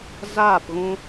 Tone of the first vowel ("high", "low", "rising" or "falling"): falling